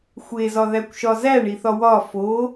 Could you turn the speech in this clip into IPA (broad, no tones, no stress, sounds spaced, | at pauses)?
xʷ e z ɒ ð æ kʷ ʃ ɒ z æ ɳ i θ ɒ w ɒ f o